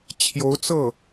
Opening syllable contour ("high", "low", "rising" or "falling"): rising